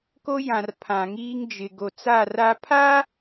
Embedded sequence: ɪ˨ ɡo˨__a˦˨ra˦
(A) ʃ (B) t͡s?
B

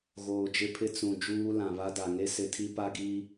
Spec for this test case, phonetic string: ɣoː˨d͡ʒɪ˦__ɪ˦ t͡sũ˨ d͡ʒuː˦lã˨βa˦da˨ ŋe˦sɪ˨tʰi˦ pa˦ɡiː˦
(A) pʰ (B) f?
A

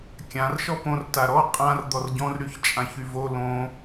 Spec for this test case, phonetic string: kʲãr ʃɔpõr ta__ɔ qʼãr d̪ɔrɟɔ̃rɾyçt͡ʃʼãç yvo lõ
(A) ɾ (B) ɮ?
A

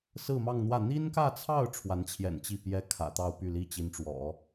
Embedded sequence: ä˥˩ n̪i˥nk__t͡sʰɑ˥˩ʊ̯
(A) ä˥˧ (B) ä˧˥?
A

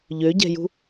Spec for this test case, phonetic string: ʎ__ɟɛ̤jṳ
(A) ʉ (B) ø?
B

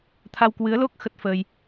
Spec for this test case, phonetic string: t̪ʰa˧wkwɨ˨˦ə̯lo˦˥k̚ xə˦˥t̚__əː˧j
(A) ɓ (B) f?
B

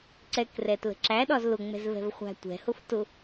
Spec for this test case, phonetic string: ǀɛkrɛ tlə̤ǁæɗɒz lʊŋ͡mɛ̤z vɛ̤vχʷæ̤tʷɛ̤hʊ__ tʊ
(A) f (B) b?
A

